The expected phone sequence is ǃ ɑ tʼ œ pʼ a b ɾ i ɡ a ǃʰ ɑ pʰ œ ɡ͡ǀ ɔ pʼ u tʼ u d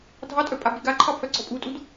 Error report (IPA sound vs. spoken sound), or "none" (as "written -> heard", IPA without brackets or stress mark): ǃ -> dʱ